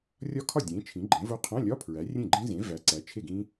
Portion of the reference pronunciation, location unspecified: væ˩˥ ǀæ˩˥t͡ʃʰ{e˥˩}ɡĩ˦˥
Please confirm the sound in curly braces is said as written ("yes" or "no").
yes